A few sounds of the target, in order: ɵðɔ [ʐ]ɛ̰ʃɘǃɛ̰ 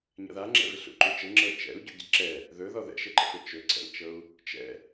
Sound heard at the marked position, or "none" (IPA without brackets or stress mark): ð